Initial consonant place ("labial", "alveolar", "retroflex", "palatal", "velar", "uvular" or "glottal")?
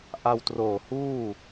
glottal